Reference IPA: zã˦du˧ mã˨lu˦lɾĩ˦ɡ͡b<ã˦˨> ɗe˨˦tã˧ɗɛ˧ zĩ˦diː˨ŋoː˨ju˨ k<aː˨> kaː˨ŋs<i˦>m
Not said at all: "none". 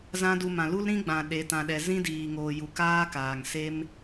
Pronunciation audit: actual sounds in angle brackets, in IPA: ã˨, aː˦, e˦

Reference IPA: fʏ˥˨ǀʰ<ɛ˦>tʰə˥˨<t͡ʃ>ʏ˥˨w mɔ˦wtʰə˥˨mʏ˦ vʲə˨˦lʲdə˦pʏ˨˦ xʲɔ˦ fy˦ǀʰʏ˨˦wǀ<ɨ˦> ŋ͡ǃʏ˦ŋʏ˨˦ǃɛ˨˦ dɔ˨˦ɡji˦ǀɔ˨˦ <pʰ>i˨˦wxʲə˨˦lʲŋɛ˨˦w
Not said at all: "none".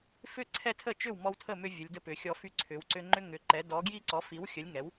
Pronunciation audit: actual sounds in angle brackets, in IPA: ɛ˦, t͡ʃ, ʏ˦, f

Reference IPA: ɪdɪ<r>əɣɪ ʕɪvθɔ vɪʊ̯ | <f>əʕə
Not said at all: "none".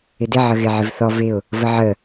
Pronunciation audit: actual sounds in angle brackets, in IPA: ʕ, v

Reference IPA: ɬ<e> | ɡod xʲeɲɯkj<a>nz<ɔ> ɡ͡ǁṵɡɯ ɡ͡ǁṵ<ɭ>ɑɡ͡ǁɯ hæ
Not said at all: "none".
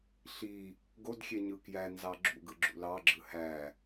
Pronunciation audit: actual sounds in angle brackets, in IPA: i, æ, ɑ, l

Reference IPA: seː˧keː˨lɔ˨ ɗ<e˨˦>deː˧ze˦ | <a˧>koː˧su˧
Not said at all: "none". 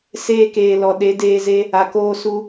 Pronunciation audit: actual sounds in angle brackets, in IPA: e˨˦, a˨

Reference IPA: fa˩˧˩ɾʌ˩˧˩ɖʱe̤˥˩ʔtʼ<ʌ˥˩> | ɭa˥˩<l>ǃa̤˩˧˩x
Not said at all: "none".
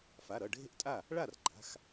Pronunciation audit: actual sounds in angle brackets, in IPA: a˥˩, r

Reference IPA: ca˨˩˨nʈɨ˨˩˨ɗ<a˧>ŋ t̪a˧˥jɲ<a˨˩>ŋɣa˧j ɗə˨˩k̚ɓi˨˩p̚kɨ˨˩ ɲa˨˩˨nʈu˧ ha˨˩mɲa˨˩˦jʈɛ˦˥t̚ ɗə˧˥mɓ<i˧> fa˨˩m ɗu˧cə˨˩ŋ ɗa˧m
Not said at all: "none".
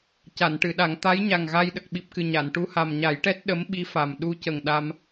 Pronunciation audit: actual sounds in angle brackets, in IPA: a˨˩˦, a˨˩, i˧˥

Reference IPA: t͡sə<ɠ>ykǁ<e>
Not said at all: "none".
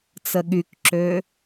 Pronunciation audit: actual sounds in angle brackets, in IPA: ɠ, ø

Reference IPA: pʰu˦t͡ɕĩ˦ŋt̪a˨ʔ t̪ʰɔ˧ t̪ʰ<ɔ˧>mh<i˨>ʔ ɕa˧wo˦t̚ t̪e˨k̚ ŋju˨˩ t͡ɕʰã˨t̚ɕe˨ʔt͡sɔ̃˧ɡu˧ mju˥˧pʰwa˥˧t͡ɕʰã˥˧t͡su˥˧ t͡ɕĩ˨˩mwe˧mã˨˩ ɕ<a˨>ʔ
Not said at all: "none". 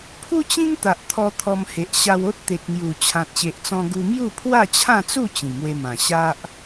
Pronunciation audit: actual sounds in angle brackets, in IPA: ɔ˧, e˨, a˦

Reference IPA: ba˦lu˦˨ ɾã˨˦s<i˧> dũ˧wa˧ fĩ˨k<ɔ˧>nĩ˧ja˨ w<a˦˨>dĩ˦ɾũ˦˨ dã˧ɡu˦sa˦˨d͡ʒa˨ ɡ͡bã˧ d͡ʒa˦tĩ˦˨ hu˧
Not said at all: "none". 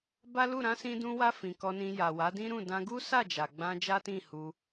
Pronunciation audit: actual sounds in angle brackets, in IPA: ĩ˧, ɔ˧, a˨˦

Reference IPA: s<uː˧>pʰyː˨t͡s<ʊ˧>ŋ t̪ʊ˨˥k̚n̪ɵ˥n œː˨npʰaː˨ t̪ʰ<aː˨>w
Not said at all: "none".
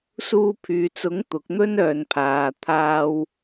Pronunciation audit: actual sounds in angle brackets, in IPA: uː˧, ʊ˨˥, aː˧

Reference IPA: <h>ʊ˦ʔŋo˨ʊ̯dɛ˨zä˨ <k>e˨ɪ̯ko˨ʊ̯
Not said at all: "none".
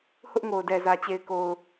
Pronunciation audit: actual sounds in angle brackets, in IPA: h, t͡ɕ

